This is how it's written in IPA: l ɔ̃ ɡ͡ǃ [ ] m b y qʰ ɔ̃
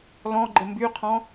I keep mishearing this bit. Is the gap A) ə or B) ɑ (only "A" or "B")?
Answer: A